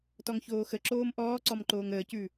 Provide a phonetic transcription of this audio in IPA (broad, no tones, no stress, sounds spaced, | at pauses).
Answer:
t ɔ ŋ ç oː x ə ǁ oː m ʔ ɔː ǀ ɔ m ǃ oː ŋ əː c ʉ